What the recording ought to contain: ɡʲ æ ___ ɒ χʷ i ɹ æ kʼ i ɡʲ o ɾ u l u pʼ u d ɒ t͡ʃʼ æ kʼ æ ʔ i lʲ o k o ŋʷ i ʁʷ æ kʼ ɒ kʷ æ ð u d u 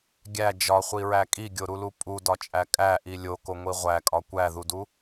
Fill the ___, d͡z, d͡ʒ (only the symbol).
d͡ʒ